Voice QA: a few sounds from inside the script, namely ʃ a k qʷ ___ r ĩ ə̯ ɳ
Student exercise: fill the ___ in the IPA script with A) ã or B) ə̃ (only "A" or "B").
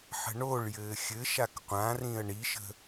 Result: A